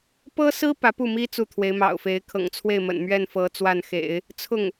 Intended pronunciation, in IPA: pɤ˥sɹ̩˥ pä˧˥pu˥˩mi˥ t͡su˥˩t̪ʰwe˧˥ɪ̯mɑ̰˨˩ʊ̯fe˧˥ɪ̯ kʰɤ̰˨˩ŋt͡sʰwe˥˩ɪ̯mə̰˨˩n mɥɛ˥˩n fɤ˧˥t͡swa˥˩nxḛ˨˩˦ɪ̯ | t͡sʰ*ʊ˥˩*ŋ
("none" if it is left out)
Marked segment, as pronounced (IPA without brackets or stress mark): ʊ˥˩